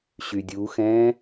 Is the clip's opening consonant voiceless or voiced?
voiceless